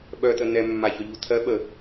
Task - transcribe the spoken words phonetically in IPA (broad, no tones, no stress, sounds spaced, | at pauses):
ɓ œ t̪ ə n̪ ɛ mː a ç œ ʎ u t̪ʰ ɜ ɓ ə